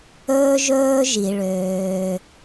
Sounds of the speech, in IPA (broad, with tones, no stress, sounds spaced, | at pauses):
ɵː˥ ʒ ɵː˥ ʒ i˩ ɭ øː˩